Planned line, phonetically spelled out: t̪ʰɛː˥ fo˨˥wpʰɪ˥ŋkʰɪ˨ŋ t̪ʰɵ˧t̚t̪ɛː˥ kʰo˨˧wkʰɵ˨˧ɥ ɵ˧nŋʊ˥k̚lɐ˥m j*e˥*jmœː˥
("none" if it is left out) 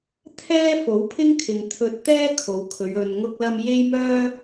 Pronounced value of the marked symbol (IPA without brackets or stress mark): e˥